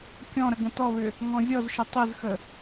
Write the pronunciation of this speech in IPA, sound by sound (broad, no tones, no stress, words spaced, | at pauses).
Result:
kʲɔ̃ɾə ɡə̃tɔβʏ | ŋɔ̃zʲɔzʃə tˤʏzxə